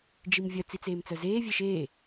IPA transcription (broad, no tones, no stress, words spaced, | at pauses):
d͡ʒimvʲœ t͡sit͡seːmt͡sœzeː vʲeʃeː